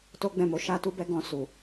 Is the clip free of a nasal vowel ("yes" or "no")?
no